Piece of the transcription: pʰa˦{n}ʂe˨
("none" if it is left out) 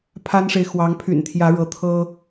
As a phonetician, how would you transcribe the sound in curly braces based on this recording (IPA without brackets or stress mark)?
n